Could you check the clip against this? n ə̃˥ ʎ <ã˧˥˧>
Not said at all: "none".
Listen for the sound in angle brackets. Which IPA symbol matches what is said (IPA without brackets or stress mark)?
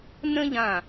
ã˧˩